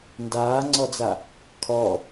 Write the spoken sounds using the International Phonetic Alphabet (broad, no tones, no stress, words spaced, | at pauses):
ndaːŋ͡ǀɔd͡za | kʰɔ